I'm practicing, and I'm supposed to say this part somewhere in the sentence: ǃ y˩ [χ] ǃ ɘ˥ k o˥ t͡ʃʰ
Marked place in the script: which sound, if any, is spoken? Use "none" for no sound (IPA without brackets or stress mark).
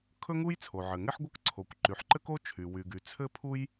ħ